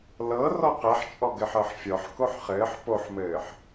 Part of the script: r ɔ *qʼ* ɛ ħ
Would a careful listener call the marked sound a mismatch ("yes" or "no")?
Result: yes